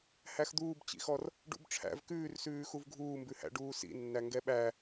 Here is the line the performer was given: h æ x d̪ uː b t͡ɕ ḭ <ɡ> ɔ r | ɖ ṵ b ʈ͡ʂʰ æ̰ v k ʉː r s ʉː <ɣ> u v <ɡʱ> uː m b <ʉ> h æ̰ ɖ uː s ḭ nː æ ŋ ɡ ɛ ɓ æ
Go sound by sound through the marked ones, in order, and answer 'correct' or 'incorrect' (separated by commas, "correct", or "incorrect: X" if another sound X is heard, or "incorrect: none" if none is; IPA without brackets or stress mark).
incorrect: x, incorrect: x, correct, correct